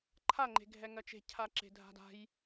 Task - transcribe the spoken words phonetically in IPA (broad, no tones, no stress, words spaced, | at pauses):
ǃʰa ŋ͡ǃe̤ɡʱɛŋɜt͡ʃe̤ cʰaǁe̤dʱa̤da̤j